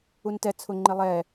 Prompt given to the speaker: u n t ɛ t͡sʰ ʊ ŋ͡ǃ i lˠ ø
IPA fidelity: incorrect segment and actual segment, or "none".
ø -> ɛ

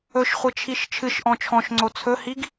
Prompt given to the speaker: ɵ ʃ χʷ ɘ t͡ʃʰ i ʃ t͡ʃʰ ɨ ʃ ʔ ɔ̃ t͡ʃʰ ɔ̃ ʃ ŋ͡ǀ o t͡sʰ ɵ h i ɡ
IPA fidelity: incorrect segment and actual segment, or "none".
none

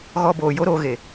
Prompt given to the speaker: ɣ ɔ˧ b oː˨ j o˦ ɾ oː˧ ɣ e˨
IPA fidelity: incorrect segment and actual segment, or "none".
none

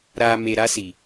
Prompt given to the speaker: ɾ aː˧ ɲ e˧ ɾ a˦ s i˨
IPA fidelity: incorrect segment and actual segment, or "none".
ɲ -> m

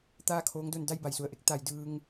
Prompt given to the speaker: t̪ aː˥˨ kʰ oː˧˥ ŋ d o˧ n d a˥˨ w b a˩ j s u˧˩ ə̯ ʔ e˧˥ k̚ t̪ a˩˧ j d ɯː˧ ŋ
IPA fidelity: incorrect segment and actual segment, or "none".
w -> j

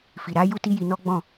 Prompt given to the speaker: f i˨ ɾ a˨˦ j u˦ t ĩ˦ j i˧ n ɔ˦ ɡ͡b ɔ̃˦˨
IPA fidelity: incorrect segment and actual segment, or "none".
ĩ˦ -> i˦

